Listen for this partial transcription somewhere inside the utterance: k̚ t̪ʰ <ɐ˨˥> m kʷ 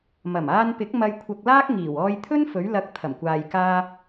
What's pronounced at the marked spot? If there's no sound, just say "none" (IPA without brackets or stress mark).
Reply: ɐ˨˩